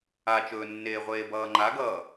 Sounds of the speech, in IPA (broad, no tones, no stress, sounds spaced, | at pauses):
a t͡ʃ ɵː nː eː ʁʷ eː b ʌː ŋ͡ǃ a ɡ ʌː